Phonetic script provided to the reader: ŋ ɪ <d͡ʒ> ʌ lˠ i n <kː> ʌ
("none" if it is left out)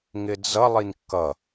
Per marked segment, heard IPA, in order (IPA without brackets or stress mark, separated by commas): d͡z, kː